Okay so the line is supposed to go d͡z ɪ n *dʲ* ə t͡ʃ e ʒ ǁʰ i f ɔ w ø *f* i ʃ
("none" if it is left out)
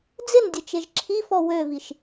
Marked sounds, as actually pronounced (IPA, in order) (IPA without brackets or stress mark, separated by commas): dʲ, v